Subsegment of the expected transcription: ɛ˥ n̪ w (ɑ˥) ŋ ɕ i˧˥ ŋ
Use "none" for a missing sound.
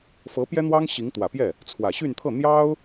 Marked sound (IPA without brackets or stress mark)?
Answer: ɑ˥